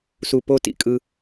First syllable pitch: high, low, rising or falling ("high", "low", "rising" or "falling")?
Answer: high